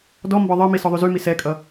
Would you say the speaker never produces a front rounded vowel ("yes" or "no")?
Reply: no